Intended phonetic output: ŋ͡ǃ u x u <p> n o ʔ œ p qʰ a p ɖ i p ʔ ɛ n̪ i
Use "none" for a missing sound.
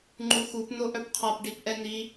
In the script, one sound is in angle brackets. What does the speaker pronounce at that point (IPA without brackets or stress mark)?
p